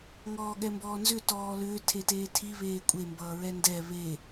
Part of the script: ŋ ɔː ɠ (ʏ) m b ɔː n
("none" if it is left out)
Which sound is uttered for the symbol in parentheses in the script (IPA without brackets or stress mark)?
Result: ɛ